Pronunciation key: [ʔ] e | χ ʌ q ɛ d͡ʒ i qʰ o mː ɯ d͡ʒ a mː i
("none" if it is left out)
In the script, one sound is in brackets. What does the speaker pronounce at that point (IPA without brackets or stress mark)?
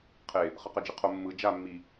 qʰ